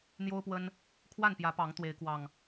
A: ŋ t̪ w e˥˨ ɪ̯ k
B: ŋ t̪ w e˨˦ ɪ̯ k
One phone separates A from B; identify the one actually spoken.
B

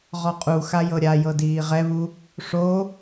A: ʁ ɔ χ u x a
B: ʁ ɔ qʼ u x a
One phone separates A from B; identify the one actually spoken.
B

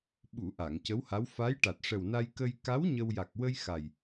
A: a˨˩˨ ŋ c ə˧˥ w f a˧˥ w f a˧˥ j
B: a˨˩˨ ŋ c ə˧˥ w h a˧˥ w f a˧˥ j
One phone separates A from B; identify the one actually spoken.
B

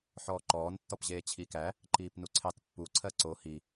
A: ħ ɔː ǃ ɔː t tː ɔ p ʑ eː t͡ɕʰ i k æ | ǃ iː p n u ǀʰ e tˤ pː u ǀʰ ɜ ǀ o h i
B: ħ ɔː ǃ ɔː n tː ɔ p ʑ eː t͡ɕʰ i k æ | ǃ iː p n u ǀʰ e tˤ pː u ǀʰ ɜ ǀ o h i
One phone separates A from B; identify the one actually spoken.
B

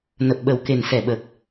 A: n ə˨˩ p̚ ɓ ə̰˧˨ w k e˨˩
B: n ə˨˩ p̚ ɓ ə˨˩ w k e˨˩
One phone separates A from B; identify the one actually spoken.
B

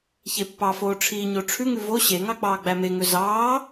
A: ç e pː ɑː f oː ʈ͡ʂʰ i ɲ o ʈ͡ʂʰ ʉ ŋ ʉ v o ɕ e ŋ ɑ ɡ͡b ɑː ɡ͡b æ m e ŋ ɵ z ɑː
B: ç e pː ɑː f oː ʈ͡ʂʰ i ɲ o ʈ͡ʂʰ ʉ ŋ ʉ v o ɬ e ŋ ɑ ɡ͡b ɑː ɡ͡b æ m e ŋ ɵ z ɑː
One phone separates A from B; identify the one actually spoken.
A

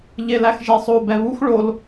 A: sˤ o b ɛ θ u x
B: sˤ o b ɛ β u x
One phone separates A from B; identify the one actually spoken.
B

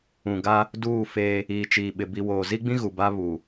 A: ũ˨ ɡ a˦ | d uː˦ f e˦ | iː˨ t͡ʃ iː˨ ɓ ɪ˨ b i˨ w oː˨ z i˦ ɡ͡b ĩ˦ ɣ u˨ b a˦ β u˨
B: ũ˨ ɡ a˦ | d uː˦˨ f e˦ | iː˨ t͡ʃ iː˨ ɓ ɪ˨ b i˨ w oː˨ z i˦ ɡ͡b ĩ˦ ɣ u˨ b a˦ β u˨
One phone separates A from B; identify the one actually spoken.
B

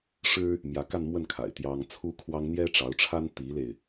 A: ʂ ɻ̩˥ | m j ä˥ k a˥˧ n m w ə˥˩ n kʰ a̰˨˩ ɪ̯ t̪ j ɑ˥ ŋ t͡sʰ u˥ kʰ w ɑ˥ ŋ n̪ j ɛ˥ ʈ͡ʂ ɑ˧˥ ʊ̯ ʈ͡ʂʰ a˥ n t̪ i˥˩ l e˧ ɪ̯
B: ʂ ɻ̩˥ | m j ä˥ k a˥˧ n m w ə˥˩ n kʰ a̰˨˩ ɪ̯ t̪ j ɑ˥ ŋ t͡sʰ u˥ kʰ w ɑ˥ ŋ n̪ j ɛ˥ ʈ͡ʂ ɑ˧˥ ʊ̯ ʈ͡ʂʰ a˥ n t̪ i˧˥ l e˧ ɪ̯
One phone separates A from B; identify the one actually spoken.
B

